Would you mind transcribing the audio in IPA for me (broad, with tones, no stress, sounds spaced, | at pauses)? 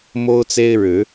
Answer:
m o˦ ʊ̯ t͡s e˦ ɪ̯ ɻ ɻ̩˨˦